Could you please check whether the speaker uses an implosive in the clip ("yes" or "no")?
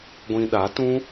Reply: yes